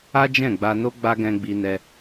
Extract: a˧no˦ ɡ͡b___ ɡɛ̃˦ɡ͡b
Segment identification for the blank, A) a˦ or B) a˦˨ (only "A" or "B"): A